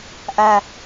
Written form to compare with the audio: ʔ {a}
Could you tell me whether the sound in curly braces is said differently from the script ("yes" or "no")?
yes